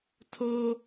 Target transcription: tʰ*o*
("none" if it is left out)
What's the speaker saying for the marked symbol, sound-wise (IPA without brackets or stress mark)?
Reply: o